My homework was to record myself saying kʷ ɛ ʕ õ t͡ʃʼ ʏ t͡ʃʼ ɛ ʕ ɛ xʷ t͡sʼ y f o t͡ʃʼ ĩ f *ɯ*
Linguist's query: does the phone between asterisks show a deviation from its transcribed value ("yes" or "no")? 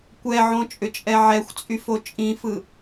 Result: no